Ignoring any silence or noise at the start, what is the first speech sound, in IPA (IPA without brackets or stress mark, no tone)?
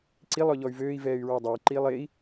ǀ